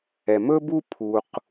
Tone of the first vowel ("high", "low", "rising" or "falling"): low